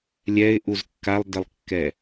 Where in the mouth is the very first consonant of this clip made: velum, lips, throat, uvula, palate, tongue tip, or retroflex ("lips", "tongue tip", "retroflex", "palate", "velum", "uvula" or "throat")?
tongue tip